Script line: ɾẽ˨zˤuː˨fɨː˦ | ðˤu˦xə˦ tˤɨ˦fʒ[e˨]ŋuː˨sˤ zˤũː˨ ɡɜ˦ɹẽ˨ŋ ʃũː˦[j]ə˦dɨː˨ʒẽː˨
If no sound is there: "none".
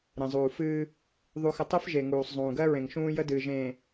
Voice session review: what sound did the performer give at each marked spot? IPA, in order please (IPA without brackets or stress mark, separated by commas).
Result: e˨, j